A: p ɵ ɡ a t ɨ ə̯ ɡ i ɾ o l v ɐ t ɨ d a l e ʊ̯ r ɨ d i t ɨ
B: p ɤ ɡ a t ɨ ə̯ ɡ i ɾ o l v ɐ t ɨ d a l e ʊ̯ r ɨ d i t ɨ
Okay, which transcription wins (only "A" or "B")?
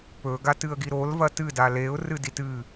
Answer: A